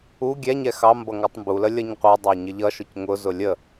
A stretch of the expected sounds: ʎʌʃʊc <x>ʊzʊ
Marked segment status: incorrect: ŋ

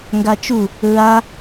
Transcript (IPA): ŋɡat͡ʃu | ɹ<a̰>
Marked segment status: incorrect: a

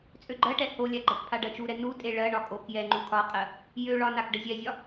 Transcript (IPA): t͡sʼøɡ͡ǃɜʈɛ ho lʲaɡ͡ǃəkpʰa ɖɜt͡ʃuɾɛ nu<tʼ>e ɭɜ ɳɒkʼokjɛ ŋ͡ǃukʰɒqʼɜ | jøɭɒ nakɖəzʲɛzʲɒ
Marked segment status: correct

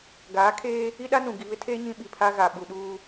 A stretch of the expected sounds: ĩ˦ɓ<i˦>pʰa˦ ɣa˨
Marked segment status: incorrect: i˨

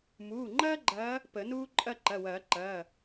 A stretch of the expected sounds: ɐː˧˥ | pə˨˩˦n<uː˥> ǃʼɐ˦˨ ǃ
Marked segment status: correct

